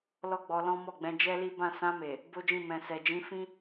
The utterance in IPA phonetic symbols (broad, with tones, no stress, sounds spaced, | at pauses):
l ɔ˦ ɡ͡b ɔ˧ l ɔ̃˦ m ɔ˦˨ ɡ͡b ɛ̃˧ d͡ʒ ɛ˦ l i˦ b ã˦˨ s ã˧ m e˨ | b o˦ d͡ʒ ĩ˦˨ m ɛ̃˨ s ɛ˨ d͡ʒ ĩ˧ f ĩ˦